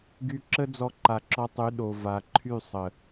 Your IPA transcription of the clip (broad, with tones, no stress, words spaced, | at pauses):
ɡy˧ǁə˦ d͡zɔ˧ǃa˨ǁɔ˧tˤy˨˦ ɗo˨ va˨ǃʰy˦˨ sˤə˨